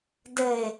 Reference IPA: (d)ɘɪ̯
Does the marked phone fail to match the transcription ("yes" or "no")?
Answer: no